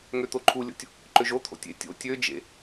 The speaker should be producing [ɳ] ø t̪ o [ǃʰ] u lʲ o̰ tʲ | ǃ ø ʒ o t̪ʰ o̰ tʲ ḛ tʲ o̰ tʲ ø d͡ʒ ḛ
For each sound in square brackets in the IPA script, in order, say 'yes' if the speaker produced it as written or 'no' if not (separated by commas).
no, yes